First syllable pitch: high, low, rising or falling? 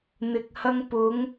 low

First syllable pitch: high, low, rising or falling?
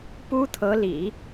high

